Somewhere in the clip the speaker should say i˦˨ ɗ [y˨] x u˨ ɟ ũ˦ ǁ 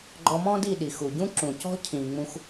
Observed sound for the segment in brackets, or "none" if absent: i˨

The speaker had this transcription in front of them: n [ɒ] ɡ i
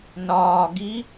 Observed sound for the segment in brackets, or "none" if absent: ɒː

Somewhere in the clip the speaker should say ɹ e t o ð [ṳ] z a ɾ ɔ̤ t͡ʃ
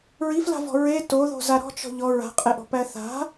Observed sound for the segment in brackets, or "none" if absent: o̤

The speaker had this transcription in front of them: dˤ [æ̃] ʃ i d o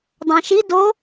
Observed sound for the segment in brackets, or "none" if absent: æ̃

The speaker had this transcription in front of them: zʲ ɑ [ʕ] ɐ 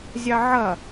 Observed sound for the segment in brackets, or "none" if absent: ʕ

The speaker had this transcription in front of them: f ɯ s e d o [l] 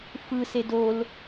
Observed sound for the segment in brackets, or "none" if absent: l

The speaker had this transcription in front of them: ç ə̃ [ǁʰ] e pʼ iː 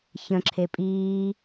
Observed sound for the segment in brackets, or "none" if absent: ǁʰ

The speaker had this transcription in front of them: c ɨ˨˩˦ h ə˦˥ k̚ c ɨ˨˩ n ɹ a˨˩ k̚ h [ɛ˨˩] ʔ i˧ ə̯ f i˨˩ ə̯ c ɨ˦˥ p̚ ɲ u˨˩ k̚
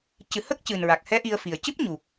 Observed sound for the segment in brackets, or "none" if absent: ɛ˧˥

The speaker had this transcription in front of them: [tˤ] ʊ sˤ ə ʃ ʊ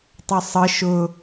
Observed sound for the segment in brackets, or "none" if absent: tˤ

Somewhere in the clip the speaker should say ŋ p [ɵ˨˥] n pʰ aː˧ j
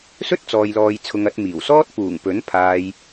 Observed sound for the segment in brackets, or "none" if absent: ɵ˨˥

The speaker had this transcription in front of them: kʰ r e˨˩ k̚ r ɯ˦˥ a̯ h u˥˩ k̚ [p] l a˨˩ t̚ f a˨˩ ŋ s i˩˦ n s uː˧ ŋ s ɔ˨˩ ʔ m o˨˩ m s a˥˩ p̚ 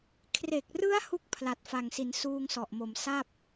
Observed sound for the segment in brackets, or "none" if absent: pʰ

